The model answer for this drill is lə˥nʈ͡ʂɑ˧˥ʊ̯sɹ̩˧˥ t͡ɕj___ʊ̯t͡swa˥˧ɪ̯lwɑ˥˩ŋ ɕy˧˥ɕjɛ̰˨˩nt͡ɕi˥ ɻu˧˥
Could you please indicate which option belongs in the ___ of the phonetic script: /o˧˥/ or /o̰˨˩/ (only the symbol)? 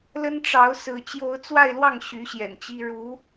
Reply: o˧˥